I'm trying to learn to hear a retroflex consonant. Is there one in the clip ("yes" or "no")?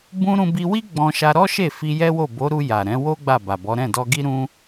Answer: no